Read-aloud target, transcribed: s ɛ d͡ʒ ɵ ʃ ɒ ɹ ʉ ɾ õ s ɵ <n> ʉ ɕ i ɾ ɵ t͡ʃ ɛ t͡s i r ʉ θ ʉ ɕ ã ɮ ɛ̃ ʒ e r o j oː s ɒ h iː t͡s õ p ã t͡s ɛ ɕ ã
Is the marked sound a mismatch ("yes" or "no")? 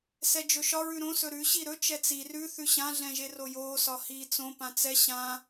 yes